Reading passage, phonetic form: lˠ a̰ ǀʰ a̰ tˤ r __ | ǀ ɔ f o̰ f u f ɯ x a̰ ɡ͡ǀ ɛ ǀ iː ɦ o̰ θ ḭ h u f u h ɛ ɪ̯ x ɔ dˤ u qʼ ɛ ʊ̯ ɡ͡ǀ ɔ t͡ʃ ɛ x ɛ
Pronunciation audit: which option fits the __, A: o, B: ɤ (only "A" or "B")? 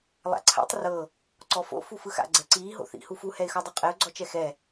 B